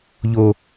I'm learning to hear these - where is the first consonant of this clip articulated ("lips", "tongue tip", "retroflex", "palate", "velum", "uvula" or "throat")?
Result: palate